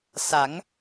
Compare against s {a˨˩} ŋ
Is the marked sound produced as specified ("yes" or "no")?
no